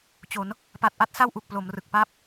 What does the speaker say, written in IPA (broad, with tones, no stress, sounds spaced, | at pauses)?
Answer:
t͡ɕ o˩˦ n | p a˨˩ t̚ ʔ a˥˩ t̚ s a˥˩ w ʔ u˨˩ k̚ p l o˩˦ m r ɯ˨˩ k̚ p aː˥˩ p̚